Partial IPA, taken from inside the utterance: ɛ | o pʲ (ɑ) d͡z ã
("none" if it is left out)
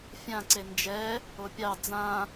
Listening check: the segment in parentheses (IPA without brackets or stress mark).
ɑ